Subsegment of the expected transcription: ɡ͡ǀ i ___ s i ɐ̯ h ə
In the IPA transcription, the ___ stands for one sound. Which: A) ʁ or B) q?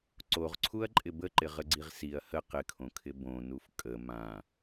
A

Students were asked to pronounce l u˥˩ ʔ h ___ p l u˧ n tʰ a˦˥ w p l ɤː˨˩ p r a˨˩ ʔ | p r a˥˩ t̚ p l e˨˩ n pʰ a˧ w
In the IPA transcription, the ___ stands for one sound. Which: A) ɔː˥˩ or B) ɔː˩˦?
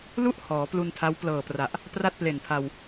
B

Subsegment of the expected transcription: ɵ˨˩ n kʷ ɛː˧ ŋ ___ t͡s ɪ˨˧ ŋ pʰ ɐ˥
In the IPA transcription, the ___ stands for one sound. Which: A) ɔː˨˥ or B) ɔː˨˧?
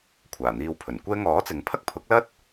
A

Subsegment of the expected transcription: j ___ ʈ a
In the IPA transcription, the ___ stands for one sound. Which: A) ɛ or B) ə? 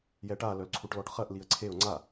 A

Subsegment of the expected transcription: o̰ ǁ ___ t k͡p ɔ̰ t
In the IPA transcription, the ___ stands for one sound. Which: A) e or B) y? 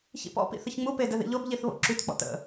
B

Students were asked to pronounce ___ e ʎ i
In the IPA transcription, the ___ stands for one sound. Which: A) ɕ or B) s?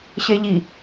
A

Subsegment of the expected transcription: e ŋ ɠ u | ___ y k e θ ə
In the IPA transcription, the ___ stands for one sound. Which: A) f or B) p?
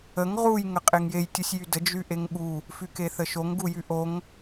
A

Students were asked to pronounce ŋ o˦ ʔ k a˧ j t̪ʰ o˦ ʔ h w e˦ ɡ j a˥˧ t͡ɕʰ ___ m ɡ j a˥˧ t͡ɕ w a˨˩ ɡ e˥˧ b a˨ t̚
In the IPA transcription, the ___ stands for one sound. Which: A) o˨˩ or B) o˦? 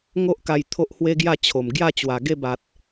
A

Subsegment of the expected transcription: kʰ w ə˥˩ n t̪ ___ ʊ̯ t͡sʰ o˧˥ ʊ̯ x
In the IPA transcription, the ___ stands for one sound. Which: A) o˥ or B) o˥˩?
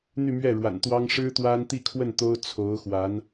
A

